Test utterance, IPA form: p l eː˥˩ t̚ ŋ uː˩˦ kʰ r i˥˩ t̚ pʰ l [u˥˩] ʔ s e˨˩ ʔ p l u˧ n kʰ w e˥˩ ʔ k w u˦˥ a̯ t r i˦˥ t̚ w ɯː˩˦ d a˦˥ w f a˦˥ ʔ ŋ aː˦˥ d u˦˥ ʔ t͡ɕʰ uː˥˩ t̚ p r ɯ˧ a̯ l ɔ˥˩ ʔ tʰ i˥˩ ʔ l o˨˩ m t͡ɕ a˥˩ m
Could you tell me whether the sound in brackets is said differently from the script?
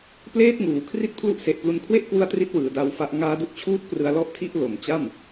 yes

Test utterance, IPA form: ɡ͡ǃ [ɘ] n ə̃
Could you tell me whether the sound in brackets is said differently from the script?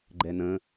yes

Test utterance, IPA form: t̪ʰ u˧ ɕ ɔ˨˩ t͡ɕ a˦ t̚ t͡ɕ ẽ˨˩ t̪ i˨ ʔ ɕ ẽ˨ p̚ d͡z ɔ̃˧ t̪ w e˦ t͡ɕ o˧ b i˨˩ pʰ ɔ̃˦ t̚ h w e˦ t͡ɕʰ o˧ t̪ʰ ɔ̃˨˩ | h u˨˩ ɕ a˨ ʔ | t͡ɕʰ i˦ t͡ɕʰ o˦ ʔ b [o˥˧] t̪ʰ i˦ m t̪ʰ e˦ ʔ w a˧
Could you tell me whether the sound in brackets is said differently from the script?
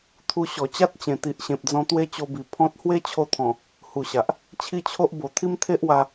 yes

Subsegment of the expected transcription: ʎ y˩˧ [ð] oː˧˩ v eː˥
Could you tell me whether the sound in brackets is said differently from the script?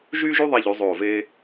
yes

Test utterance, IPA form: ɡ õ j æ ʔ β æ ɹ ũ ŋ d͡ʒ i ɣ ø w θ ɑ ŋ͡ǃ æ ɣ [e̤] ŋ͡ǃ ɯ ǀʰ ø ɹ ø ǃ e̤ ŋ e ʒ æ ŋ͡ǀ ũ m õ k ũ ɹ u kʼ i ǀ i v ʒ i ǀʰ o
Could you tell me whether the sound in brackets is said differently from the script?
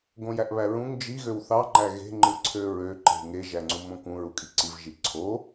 no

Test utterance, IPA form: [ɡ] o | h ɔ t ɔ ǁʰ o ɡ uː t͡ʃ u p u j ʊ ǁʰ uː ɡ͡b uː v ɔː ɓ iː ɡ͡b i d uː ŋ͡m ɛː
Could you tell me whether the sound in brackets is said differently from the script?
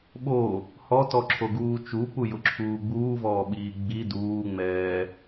yes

